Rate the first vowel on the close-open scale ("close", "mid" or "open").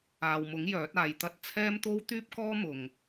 open